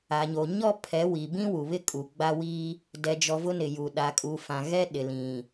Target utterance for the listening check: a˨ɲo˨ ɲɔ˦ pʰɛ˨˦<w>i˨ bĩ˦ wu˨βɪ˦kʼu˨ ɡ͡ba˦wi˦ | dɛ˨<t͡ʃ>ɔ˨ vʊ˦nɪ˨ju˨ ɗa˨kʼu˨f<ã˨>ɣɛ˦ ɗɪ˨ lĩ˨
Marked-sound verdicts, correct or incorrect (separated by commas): correct, incorrect, correct